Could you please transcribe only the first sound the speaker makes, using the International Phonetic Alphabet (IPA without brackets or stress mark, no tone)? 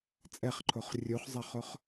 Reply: t͡sʼ